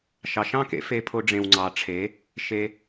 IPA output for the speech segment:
ʃ ɑ˨ ʃ ɑ̃˦˨ k ḛ˨˦ f e˧ pʰ o˧ ɖ͡ʐ ẽ˨ w ŋ͡ǀ ɑ˨ ʈ͡ʂʰ e˨˦ | ʃ e˧

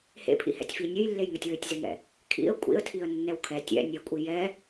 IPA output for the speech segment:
h ḛ pʰ ḭ h ɛ̰ tʲ f i nʲ ø j lː e j ŋ ø tʲ w ø tʲ z e ŋ ɛ̰ | kʰ ḭ ə̯ kʷʼ ḭ ə̯ tʰ i ə̯ nː ɛ w kʰ ɛ tʲ ɛ̰ nʲ ɛ kʷʼ i j ɛ

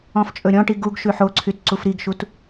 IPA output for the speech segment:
ɔ̃ f t͡ʃʼ ɵ ɾʲ ɔ̃ ʈ i ɡ u ɡ ʃ ʉ ħ o ǀʰ y t ǀ u f ɾ i ɡ ʃ u t

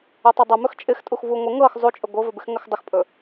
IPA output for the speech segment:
ɵ tˤ ɵ dˤ ə m ɵ x t͡ʃʼ ɪ x tʼ u x v u ŋʷ ɪ ŋ ɤ x zˤ u t͡ʃʼ ɵ ɡʷ ɤ v ɵ b ɪ x ŋ ə x dˤ ə x pʼ ɵ

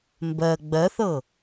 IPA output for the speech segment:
m b ɜ ɡ͡b ɜ θ ɤ

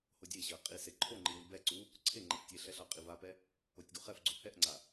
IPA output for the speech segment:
h o dʲ e ɕ ɜ qʼ i s e ǃʰ o ŋ͡ǃ i w i b ɛ ǀ u | ǀʰ e ŋ͡ǃ ɛ f tʲ e ɬ ɛ ɬ ɑ qʼ i v a p ɛ | o tʲ ɡ u χ ɛ f ɡ͡ǀ o h ɛ ʔ ŋ͡ǀ a

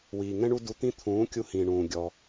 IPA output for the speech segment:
w iː˨ ŋ ɛ̃˦ ɳ u˦ d u˧ t̪ ĩ˦ t̪ʰ ũː˨˦ kʲ u˧ h ĩː˨ ɳ ũː˨ ɡʲ ɔ˧

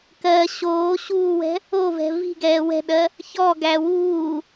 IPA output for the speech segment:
k ɜ ɕ oː ɕ uː w ɛ̤ | o v ɛ̤ v i̤ ɡ ɛː w ɛ̤ ɗ ɜ | ç ɔ ɡ æ w uː

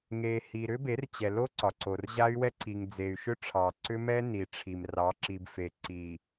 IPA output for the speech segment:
ŋ e˨ h i˨ ɾ ʏ˦ b e˨˦ r t͡ɕ ɛ˨ l o˦ ǀ ɒ˨ ǀ o˨ r ʑ a˦ y̯ w ɛ˦ ǀ i˨ ŋ d͡z e˨ y̯ ʃ ʏ˦ ʈ͡ʂʰ ɑ˨ ǀ ʏ˦ m ɛ˦ n i˨ ʈ͡ʂʰ i˨ m r ɑ˨˦ ǁ i˨ b f e˨ ǀ i˨

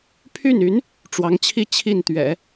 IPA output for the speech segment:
pʰ y˥˩ n y˧˥ n | ʈ͡ʂ w ɑ˧˥ ŋ t͡ɕʰ i˥˧ t͡ɕʰ i˥˩ n t̪ ɥ ɛ̰˨˩˦

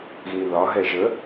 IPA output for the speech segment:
ɣ ĩ ð ɒ ɦ ɛ ʒ ə

